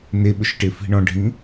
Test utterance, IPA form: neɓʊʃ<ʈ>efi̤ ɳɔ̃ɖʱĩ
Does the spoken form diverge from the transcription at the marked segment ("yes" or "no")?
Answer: no